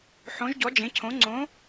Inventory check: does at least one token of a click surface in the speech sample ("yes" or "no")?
yes